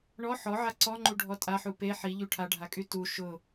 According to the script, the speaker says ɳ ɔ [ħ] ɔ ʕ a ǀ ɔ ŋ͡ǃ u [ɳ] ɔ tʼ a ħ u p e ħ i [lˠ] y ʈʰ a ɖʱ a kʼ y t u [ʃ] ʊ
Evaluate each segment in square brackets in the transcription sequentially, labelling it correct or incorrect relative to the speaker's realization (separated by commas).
correct, incorrect, incorrect, correct